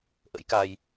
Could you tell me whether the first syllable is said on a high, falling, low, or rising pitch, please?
rising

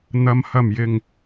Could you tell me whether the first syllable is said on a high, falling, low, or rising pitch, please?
low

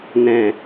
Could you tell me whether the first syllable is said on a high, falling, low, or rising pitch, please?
low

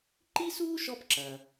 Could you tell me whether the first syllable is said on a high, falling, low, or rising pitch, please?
high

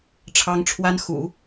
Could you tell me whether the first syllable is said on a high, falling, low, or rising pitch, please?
high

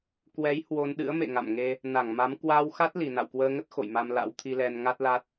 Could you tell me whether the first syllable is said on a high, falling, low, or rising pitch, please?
rising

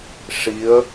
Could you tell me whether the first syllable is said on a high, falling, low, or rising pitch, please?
rising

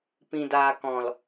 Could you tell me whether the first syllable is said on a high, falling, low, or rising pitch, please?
low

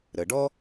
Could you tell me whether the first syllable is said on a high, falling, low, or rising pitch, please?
low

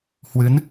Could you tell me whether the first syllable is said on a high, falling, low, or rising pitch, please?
rising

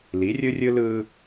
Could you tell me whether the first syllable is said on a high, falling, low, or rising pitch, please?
rising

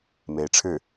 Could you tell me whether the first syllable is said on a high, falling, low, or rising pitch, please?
rising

